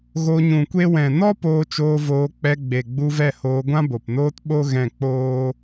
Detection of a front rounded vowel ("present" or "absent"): absent